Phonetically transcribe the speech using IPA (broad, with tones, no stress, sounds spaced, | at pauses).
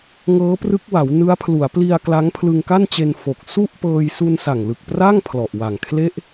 ŋ ɤː˦˥ p r ɯ˦˥ k̚ w a˩˦ w n ɯ˦˥ a̯ pʰ l u˩˦ a̯ p l i˧ a̯ k l a˦˥ ŋ pʰ l ɯ˧ ŋ k a˥˩ n t͡ɕ e˧ n f o˨˩ k̚ s u˥˩ ʔ p ɤː˧ j s u˧ n s a˨˩ ŋ l ɯ˨˩ k̚ p r a˥˩ ŋ pʰ l ɔ˨˩ ʔ w a˨˩ ŋ kʰ l e˥˩ ʔ